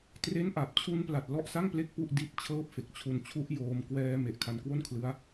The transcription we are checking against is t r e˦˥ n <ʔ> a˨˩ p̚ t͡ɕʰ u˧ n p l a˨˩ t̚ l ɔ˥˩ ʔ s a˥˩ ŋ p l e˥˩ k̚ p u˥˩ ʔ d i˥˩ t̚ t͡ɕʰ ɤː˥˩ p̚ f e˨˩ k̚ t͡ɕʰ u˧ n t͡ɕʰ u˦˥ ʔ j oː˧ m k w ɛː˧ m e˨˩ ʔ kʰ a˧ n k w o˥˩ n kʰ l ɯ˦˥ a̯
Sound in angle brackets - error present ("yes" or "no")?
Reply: no